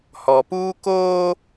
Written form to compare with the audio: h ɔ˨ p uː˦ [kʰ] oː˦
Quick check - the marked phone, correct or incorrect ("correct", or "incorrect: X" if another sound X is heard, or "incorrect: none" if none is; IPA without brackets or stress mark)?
incorrect: k